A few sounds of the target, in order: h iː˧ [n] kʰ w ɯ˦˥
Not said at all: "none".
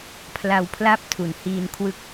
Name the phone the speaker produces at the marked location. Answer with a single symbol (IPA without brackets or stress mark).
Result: n